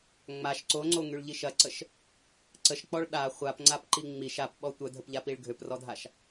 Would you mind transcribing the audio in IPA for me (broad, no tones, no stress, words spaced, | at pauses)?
ŋ͡maʃ ǀoŋ͡ǀoŋyɭʎi ʃɐǀəʃ | ǀəʃk͡pɔɭ ɗa χʷapŋ͡ǀapǃi ŋ͡miʃ apɓɔ tʷœdʱəpʎapiɭ ɡʱøprɔdʱaʃ